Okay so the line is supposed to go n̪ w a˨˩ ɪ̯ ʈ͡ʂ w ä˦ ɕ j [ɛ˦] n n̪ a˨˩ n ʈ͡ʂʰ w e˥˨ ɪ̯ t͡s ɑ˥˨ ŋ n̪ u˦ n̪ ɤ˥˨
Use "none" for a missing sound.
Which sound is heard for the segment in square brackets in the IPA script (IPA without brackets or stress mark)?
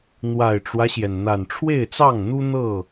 ɛ˩